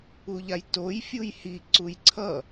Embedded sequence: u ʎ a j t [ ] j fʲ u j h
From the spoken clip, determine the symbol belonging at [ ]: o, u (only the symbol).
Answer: o